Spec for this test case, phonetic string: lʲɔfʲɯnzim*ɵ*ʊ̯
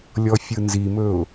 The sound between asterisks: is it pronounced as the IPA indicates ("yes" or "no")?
yes